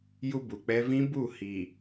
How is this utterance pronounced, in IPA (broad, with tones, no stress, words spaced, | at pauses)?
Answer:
ju˦bu˨k͡pɛ˦ vĩ˦bu˦˨hiː˨